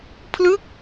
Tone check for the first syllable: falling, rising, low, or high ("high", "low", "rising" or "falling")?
falling